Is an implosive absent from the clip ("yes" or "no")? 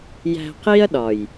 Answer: no